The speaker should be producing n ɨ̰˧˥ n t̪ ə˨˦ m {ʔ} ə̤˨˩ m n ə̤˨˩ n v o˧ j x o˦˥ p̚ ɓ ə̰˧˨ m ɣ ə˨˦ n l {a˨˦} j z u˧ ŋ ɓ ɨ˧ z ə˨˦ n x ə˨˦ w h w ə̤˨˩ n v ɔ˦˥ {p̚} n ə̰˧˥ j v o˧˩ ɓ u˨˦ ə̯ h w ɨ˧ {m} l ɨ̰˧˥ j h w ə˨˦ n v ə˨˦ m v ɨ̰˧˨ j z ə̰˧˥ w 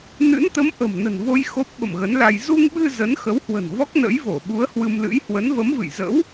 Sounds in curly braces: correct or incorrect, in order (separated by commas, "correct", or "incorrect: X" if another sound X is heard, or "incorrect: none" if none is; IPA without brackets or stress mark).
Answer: correct, incorrect: a˧, incorrect: k̚, correct